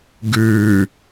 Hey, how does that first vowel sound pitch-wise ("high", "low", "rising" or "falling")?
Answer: low